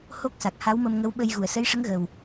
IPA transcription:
h o˦˥ k̚ s a˨˩ k̚ h a˧˥ w m ə˧ m ŋ ə˧˥ w ɓ ə˧ j ɣ u˨˩˨ ə̯ s ə˧˥ j ʂ ə˧˥ ŋ ɣ ə˨˩ w

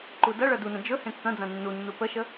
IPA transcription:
ǃ u d ɐ ɭ ɐ d u n ɐ̃ d͡ʒ ɵ h ẽ kː ɐ̃ d͡z ɐ̃ nː u nː u p ə ʃ ə

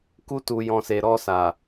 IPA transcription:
k u˧ t u˨ j ɔ̃˨ s e˨ ɾ ɔ˧ s a˨

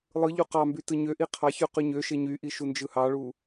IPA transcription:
lˠ ɯ ʎ u q ɑ m b y t ɯ ɲ ø ʔ i qʰ ɑ ç y q y ɲ ø ʃ e ɲ y ʔ i ʃ u n d͡ʒ ɯ h ɑ ɭ u

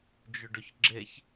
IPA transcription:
d͡ʒ ɵ ɖ ɵ ç ɡ͡ǁ e ç

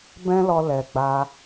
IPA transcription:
b ɛ̃˦ l ɔ˧ l ɛ˨ ɡ͡b a˧

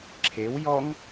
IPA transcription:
ǁʰ e w j ɔ ŋ

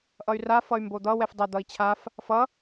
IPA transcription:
ʔ ʌ y̯ r a f ʌ y̯ m b o d̪ ʌ w ɛ f dˤ ʌ d̪ ʌ i̯ t͡ɕʰ a f | f ʌ

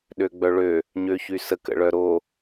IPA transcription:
ɗ ø ɡ͡b œ ɭ ø | ɲ ø ç y s ə k ə̰ ɭ œ ɾ o

